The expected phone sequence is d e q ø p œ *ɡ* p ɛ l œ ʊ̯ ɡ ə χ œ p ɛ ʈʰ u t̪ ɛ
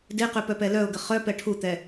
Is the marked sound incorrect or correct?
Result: incorrect